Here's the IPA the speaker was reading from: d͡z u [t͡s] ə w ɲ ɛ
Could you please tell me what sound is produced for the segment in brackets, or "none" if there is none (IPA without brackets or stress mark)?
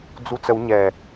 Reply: t͡s